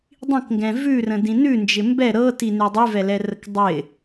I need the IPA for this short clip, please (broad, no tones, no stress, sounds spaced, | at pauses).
dˤ ĩ k ŋ ɡ ɛ̃ v ʉ r ə̃ d ĩ n ʉ n d͡ʒ ɪ m b ɛ ɾ ɤ t i n ʉ dˤ ʉ v ɛ l ɛ r ə k dˤ ɪ